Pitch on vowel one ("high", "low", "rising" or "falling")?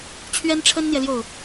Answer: high